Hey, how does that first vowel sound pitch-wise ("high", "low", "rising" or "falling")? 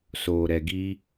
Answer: low